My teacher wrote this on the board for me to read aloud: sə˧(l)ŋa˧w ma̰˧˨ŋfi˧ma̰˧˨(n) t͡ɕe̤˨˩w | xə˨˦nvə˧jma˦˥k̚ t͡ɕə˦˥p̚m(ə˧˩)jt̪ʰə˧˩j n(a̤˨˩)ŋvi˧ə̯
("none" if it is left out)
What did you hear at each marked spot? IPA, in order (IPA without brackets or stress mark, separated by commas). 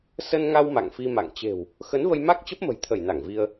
n, ŋ, ə̤˨˩, a˧˩